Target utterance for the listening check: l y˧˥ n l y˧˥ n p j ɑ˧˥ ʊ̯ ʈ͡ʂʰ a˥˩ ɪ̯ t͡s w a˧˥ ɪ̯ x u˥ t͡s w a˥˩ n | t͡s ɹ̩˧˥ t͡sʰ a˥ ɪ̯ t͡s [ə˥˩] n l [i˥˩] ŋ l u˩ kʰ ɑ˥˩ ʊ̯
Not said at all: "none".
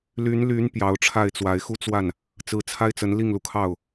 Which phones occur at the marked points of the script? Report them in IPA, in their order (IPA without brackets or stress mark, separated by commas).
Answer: ə˧˥, i˥˩